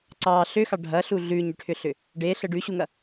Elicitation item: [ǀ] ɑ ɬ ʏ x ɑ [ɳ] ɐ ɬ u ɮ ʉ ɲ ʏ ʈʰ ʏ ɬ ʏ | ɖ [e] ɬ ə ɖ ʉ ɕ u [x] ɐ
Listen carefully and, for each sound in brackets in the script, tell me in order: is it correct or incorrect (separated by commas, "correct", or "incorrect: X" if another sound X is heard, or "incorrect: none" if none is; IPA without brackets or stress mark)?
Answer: correct, incorrect: ɖʱ, correct, incorrect: ŋ